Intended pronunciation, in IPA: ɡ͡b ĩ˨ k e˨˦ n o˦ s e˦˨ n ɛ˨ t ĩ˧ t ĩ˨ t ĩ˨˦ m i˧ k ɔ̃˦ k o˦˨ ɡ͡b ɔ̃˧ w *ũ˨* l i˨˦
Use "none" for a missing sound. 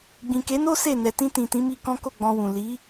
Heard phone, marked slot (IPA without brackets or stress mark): ũ˨